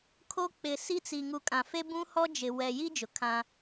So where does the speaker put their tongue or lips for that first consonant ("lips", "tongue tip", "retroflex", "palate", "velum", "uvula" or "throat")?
velum